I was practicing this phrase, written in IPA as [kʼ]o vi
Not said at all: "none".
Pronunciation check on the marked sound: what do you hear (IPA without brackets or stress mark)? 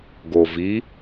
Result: ɡ